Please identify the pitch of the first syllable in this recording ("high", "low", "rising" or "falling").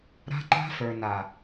high